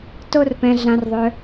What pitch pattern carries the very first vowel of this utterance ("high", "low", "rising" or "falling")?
high